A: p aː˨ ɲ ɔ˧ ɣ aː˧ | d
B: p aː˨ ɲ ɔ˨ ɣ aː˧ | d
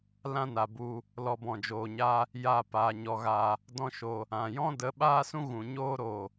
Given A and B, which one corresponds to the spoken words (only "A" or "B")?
A